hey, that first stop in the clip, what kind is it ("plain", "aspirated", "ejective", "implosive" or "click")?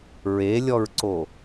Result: click